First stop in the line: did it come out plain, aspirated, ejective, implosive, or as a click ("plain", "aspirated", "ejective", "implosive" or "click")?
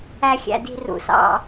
plain